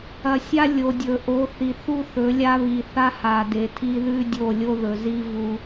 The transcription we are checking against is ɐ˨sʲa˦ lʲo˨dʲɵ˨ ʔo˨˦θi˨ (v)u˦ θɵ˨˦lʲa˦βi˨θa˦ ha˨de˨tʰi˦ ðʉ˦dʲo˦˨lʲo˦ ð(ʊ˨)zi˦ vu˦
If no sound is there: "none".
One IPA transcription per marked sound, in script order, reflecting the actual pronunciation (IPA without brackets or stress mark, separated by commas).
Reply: θ, ɵ˨